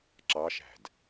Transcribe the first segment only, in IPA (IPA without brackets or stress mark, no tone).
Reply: ǁ